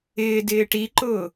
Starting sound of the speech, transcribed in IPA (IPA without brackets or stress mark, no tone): ɪː